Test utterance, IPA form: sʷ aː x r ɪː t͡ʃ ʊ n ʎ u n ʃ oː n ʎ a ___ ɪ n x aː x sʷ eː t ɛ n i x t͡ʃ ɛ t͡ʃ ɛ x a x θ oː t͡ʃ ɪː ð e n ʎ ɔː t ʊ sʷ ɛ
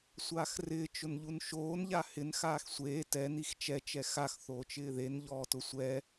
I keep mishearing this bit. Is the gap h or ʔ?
h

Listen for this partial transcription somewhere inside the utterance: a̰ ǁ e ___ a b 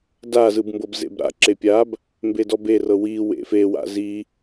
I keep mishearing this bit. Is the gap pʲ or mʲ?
pʲ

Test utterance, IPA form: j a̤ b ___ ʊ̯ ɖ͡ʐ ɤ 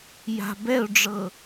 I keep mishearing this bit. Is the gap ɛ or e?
ɛ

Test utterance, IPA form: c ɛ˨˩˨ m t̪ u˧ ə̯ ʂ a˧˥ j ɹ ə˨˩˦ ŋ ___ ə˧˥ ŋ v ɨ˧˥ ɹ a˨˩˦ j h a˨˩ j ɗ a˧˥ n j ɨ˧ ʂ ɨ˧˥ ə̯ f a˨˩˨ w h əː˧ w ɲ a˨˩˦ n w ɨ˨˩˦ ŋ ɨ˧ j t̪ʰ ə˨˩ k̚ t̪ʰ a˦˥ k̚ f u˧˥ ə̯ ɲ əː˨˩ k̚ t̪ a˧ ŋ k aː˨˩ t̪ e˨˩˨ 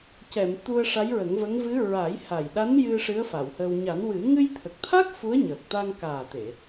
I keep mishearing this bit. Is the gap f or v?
v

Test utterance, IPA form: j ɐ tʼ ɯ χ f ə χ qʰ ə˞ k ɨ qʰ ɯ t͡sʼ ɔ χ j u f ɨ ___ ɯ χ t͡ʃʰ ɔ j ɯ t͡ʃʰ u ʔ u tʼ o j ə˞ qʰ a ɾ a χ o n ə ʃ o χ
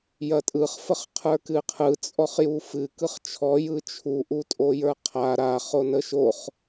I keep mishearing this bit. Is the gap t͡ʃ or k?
k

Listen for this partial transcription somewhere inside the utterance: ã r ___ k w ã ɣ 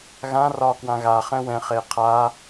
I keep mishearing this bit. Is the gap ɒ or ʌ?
ɒ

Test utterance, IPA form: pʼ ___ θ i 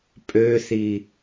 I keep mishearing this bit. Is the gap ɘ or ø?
ø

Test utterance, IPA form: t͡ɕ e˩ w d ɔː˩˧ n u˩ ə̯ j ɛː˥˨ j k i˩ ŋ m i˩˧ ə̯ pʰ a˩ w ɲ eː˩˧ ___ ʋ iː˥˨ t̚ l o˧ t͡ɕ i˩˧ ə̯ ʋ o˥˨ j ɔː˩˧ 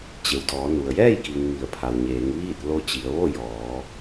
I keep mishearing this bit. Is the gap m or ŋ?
ŋ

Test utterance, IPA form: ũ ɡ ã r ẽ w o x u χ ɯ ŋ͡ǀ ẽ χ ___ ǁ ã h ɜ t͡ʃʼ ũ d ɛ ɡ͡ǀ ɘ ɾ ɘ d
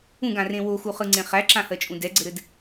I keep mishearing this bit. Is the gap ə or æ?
æ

